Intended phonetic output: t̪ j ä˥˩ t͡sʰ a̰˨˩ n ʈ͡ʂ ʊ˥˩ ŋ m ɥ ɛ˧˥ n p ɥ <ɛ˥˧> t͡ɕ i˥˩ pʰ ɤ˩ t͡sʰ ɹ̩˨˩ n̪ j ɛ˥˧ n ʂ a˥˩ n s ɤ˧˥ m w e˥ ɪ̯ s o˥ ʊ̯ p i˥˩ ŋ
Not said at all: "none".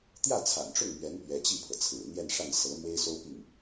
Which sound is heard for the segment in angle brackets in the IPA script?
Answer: ɛ˧˥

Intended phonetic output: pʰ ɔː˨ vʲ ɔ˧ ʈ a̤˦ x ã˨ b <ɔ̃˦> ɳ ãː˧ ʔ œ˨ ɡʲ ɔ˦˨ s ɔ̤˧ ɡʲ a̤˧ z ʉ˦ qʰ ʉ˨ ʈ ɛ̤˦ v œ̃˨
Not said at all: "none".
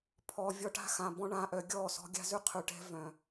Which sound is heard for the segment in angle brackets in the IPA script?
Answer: ɔ̃˦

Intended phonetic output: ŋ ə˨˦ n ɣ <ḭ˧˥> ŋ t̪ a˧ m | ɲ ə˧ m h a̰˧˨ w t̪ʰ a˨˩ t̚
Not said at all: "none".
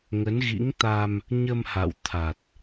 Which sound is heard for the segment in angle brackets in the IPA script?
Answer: ḭ˧˥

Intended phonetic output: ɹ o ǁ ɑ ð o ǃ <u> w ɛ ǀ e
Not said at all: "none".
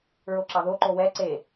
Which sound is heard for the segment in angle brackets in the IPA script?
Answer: o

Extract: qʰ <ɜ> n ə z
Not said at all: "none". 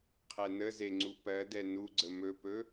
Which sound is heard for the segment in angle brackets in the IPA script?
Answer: ɛ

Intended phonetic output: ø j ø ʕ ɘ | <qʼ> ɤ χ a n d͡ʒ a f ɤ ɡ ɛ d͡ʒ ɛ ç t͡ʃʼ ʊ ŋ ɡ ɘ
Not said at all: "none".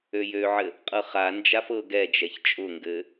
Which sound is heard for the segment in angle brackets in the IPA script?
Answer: qʼ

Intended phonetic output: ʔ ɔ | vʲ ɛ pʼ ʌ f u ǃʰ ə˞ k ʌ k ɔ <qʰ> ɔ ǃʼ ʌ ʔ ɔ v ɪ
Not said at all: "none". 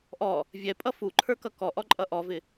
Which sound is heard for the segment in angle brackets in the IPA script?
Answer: ʔ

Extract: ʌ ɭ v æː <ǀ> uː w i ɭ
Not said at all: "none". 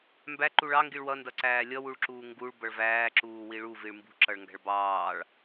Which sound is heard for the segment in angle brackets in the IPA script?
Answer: ǁ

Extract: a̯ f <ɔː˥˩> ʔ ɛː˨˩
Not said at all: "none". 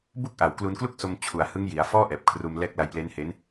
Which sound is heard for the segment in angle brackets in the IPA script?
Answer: ɔː˥˩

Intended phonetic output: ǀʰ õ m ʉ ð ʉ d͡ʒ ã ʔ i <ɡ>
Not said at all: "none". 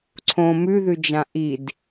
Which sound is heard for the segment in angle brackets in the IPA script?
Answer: d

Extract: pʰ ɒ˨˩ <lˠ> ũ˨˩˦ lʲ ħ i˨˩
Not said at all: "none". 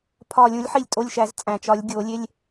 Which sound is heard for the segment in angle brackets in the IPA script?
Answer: lʲ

